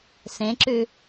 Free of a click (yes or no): no